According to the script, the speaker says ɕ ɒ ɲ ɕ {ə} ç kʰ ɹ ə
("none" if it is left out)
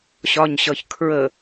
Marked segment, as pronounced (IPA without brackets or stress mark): ʌ